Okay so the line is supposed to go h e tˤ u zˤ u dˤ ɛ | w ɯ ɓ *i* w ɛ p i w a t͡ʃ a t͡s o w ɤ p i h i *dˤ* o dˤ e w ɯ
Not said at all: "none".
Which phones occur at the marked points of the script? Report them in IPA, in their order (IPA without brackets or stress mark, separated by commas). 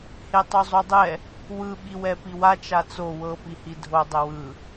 i, dʱ